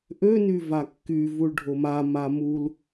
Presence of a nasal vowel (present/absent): absent